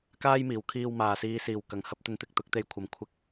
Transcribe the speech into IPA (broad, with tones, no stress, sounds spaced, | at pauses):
k aː˥ j m iː˨˩ w kʰ iː˧ w m aː˨˩ s iː˨ s iː˨˩ w k ɐ˨˩ ŋ h ɐ˧ p̚ t̪ ɵ˨˧ n t̪ ɪ˨ k̚ t̪ ʊ˨˥ k̚ t̪ e˧ j kʷʰ ɐ˨ m kʷʰ ɪ˧ k̚